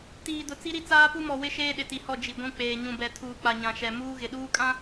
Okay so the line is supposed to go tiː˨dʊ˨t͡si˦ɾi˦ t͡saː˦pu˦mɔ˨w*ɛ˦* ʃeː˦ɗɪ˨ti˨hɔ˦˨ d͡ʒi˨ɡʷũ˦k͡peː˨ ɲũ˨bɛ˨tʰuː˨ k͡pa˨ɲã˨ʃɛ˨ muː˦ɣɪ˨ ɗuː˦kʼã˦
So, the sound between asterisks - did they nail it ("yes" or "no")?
no